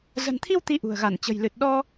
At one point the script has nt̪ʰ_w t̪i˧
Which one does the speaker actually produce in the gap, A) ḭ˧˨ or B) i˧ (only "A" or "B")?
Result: B